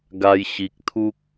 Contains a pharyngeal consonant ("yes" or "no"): no